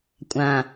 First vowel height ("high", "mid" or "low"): low